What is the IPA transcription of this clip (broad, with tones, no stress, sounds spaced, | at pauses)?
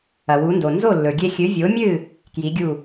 ɐ˩ w u˩˥ n d o˩ n z o˥˩ lː ɵ˩ ɡʲ e˧ xʲ ɨ˩˥ vʲ o˩˥ mʲ ɨ˥˩ | k j i˩˥ ɡʲ u˥˩